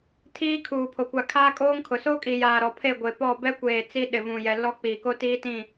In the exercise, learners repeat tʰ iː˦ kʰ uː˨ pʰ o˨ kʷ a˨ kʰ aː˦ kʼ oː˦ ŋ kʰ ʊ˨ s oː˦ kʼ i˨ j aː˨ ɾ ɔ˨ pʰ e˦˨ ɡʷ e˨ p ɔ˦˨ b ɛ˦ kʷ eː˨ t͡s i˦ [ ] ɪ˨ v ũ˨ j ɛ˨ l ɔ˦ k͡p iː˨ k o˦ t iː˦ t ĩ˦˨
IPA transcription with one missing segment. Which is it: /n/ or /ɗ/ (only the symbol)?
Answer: ɗ